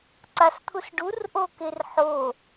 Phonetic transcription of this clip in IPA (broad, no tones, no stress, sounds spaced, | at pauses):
ǀ a s t̪ʰ u s ɖ u r ʔ o k e r ħ o